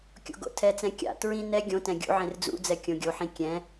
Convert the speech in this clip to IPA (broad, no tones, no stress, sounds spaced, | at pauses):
kʲ o̰ ɡ o̰ tʰ ɛ t͡s ɛ̃ kʲ a̰ t ɹ ĩ n ɛ ɡʲ õ t ɛ̃ ɡʲ ṵ ʕ ẽ r d͡z ṵ d͡z ɛ kʲ õ ɡʲ o ħ ĩ kʲ ɛ̃